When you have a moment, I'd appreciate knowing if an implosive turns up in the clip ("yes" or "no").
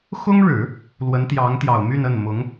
no